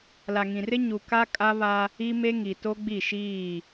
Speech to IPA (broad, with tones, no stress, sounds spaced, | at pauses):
l a˨ ŋ ĩ˨ r ɪ˦ ɲ u˨ k a˦ kʼ a˦ β a˦ | i˦ m e˦ ŋ i˨ t o˦ ɡ͡b i˦˨ ʃ iː˦˨